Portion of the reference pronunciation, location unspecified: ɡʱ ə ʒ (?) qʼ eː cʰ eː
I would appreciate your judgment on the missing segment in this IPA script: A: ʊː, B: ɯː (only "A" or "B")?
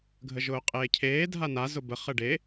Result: A